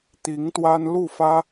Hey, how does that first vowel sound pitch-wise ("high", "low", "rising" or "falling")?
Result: rising